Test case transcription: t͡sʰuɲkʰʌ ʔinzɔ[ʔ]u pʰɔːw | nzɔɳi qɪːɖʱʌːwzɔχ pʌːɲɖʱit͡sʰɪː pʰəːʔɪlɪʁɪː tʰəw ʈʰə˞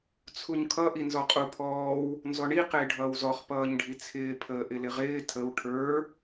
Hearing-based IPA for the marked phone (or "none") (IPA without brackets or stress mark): qʼ